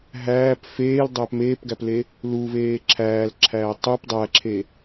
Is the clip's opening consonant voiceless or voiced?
voiced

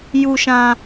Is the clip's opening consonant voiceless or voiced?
voiced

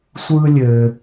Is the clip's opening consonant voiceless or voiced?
voiceless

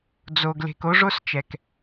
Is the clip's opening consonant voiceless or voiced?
voiced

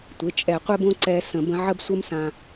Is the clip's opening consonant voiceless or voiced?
voiceless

